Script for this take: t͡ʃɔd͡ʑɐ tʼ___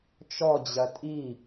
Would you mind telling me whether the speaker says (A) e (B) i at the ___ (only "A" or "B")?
B